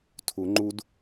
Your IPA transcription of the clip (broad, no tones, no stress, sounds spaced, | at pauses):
tʰ u ŋ͡ǃ u d